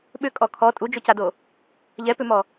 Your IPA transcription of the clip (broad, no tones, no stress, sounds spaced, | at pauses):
ɓ ʏ kʼ ɔ kʰ ɔ tʼ u d͡ʒ o c a d o | ʎ ɛ p ʏ m ɔ